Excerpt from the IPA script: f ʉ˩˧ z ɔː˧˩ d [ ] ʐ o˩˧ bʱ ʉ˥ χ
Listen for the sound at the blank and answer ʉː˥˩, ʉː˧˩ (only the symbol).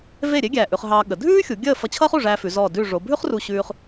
ʉː˧˩